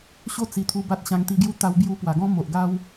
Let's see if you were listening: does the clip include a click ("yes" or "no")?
no